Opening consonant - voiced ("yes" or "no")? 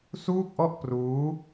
no